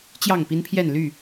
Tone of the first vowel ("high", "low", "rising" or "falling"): falling